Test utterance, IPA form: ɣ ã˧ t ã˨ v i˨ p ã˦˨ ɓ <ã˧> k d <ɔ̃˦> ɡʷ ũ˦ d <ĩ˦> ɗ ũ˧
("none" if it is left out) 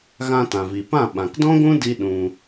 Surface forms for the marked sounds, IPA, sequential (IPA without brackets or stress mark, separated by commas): ã˨, ɔ̃˦, i˦